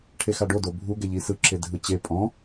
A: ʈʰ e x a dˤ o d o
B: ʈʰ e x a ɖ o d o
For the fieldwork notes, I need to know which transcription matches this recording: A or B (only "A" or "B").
B